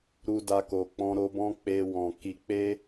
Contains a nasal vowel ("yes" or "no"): yes